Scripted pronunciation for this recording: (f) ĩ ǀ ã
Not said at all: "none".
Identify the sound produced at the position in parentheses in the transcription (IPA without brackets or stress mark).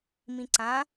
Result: m